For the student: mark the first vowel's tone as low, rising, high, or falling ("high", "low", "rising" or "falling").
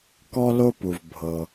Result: high